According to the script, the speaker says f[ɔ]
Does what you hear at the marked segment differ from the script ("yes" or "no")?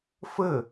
yes